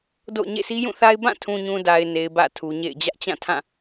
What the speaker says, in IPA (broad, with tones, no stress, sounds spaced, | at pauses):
d o̰˦˨ ʊ̯ ɲ ḛ˦˨ s i˦ j ũ˦˨ θ a˦ ɪ̯ b ã˦˨ tʰ ũ˨ ɲ ũ˨ d a˨ ɪ̯ n e˨ ɪ̯ b ä̰˦˨ tʰ u˨ ɲ ḛ˦˨ ɪ̯ d͡ʑ ä˦ ʔ t͡ɕ ã˦˨ tʰ ã˦˨